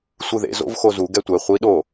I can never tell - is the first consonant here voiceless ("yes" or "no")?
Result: yes